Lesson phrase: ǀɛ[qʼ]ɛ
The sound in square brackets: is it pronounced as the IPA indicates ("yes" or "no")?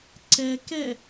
no